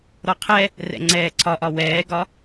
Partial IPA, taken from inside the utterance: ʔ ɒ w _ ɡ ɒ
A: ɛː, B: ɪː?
A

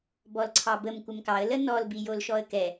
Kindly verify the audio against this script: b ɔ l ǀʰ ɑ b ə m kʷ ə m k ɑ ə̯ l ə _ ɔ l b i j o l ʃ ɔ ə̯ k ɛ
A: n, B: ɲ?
A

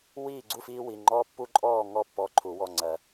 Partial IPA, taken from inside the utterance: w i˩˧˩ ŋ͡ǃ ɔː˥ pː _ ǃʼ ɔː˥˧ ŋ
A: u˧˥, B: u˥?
B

